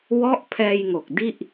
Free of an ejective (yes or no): yes